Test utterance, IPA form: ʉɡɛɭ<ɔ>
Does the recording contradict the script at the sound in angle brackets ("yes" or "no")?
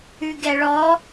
no